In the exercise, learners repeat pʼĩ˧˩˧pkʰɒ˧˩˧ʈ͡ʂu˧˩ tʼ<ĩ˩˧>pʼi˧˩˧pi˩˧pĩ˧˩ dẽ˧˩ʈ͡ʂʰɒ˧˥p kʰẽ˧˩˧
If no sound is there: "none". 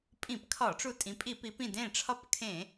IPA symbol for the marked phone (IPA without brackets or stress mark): ĩ˩˧